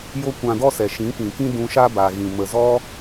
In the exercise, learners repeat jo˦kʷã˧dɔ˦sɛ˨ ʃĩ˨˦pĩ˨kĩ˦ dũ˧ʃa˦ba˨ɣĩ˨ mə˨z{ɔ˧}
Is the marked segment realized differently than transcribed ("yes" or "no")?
yes